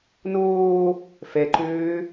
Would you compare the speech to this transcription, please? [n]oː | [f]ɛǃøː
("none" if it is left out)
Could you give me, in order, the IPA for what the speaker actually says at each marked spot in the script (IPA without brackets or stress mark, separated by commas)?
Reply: n, f